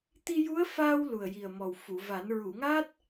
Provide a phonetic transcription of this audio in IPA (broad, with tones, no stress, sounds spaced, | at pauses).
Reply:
t̪ i˧ j u˧˥ ə̯ f aː˧ w l u˨˩ ə̯ j i˨˩ ə̯ m ɔ˨˩ w f u˨˩˨ v a˨˩˦ n ɹ u˨˩˨ ŋ a˦˥ t̚